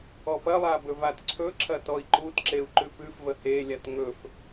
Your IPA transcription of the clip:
ɔ p ɐ lˠ a b ɵ v a t ǀʰ ɵ ǁ ɐ t ɔ i̯ ǃ u t ǁ e u̯ ǃ ʉ p ʉ f v ə h e lʲ a t ŋ ɵ f

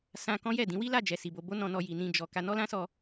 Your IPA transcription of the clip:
s ã˧ k ɔ̃˦ j ɛ˦˨ d ĩ˨˦ w i˦ l a˦˨ d͡ʒ ɛ˧ s i˧ b o˦ b o˦ n ɔ̃˧ n ɔ˧ j i˨ n ĩ˧ d͡ʒ ɔ˧ k a˧ n ɔ˦ l ã˦ s ɔ˧

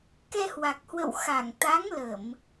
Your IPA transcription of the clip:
k ɛ˧ h w a˨˩ k̚ h w ə̰˧˨ w x a˧˩ ŋ t̪ a˨˦ ŋ l ə˧˩˨ m

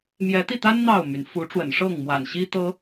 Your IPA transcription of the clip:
m j ɛ˨˦ t̪ i˥˨ t̪ a˦ n n̪ ɑ˥˨ ʊ̯ m y˩ n f u˨˦ ʈ͡ʂ w ə̰˨˩ n ʂ ɤ˥˨ ŋ m w a̰˨˩ n ɕ i˦ t̪ ɤ˦

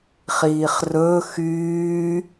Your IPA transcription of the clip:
χ iː χ r ɵ x yː

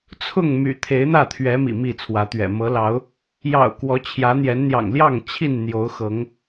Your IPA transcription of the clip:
t͡sʰ ʊ˥˨ ŋ m y̰˨˩ t̪ʰ e˨˦ ɪ̯ n̪ ä˥˨ t̪ʰ ɥ ɛ˨˦ m ḭ˨˩ m i˥˨ t͡sʰ w ä˨˦ t̪ ɥ ɛ̰˨˩ m ɤ˨˦ l ɑ˨˦ ʊ̯ | j ɑ̰˨˩ ʊ̯ k w ɔ˨˦ t͡ɕʰ j ä˨˦ n̪ j ɛ˨˦ n n̪ j ɑ̰˨˩ ŋ l j ɑ˥˨ ŋ t͡ɕʰ i˥˨ n n̪ j o˨˦ ʊ̯ x ɤ˨˦ ŋ

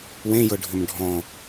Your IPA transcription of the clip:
w ẽ j ɤ ɖʱ ʏ m ɖʱ ɔ̃

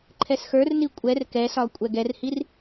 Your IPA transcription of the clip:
ǃʰ ɛ s x ə˞ r n i kʷʼ ɛ r k ɛ s ɒ kʷʼ ɛ ɡ ɛ r h i r

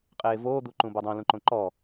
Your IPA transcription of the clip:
qʼ eː v oː d̪ u ǃ ũ b o dˤ õ l ũ ǃ õ ǃ ɔ

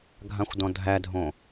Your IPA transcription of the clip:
ɡʱ ã xʷ d ɔ̃ dʱ æ dʱ õ

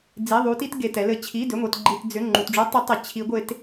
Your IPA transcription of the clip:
d͡z i˧˥˧ ðˤ u˦˥ t i˦˥ t ɡ e˧˥˧ t ɛ˦˥ l ɘ˦˥ t͡ɕʰ i˧˥˧ d ʏ˧˥˧ ŋʷ ɛ˧˥˧ t ɡ͡ǃ i˧˥˧ t d͡z ʏ˧˥˧ ŋ͡ǃ u˧˥˧ t ɖ͡ʐ u˦˥ tˤ ʏ˦˥ tˤ ɘ˧˥˧ t͡ɕʰ i˦˥ ɡʷ e˦˥ t

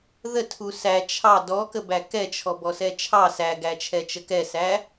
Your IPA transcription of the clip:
ð ə tʰ u s æ t͡ʃʰ ɑ d ɔ k ə b æ k ɛ t͡ʃʰ ɔ b ɔ s ɛ t͡ʃʰ ɑ s æ ɡ æ t͡ʃʰ ɛ t͡ʃ ə k ɛ s æ

